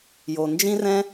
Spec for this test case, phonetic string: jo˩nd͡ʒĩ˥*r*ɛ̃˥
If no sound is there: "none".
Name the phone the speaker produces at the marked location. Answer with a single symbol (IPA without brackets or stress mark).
r